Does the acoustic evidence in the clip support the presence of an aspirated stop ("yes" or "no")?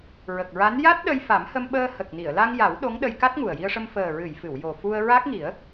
no